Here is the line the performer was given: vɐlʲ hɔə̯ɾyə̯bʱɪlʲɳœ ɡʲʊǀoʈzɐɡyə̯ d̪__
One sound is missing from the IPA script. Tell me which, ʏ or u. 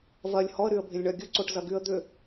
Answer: ʏ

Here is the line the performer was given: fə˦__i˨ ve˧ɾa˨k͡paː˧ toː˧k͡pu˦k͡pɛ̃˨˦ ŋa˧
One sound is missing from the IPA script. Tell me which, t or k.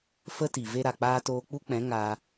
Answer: t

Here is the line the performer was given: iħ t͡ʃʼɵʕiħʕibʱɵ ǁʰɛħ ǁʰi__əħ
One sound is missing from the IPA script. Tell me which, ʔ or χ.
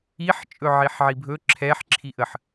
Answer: ʔ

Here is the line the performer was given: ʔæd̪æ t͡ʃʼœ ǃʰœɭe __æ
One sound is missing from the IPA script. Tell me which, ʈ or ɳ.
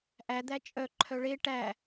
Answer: ʈ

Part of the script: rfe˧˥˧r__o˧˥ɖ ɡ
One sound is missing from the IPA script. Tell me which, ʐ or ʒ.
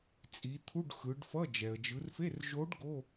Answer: ʒ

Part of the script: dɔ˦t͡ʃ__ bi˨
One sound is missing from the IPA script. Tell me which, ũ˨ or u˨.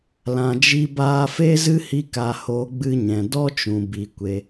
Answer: ũ˨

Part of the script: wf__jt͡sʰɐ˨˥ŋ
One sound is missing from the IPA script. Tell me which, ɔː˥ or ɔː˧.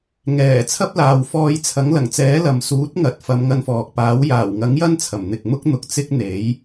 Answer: ɔː˧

